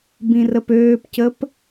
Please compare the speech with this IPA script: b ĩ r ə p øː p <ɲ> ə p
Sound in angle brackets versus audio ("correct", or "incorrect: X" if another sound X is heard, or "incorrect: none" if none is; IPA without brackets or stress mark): incorrect: c